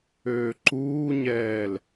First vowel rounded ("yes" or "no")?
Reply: yes